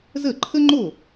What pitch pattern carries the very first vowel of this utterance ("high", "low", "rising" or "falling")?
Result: falling